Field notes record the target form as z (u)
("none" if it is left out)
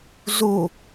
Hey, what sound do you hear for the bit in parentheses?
u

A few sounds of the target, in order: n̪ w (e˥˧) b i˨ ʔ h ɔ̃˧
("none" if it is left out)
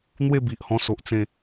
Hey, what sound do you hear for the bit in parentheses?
e˥˧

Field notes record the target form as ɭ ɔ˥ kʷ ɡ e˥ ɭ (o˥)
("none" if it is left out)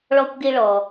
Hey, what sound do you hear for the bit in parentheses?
ɔ˥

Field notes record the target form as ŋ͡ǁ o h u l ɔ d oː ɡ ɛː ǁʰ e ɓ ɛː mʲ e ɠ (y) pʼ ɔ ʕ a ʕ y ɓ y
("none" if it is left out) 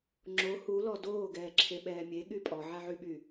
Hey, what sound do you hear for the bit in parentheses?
y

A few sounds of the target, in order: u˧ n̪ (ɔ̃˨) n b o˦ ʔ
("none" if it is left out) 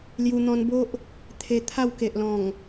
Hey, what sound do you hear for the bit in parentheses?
ɔ̃˧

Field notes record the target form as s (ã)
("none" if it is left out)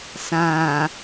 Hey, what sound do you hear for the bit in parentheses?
ã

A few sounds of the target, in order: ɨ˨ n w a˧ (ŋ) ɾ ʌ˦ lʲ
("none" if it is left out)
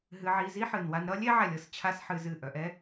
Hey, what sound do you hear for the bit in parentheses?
n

